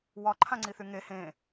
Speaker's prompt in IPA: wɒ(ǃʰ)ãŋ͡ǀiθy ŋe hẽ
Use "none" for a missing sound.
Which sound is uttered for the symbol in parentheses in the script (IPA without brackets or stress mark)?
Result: ǃʰ